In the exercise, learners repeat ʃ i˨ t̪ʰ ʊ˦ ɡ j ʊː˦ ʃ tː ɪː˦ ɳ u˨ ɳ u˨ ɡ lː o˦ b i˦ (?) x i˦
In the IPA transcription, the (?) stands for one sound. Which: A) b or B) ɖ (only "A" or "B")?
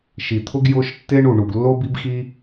A